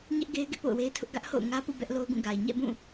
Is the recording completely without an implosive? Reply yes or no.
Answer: yes